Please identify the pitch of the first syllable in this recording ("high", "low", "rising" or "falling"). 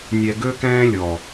low